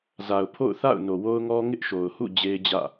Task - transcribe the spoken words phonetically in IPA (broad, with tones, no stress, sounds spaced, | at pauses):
z a˨ ʊ̯ pʰ o̰˦˨ ʊ̯ θ a̰˦˨ ʊ̯ n o˨ w o˦ ʊ̯ ŋ ɔ˦ ŋ ɪ˦ ʔ ʃ o˨ ʊ̯ h ṵ˦˨ d͡ʑ e˦ ɪ̯ d͡ʑ ä̰˦˨